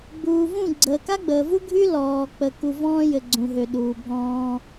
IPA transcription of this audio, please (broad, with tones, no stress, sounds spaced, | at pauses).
ɡ͡b uː˨ v ũ˦˨ ɡ͡ǀ əː˨ k a˦ ɡ͡b əː˨ v u˦ ɡʱ y˦ l ɔː˨ k͡p ə˨ k u˨ v ɔ̃ː˦ j ɘ˨ ɡ͡ǀ ũ˨ ɦ ø˨ ɗ uː˨ bʱ ɔ̃ː˦